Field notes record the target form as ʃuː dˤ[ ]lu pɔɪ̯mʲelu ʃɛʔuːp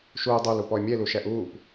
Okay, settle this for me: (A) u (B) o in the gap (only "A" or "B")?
B